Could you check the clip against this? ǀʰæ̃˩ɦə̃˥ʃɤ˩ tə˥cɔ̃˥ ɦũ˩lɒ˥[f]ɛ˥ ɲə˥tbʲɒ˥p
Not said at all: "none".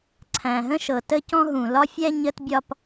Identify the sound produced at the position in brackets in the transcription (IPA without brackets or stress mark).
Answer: fʲ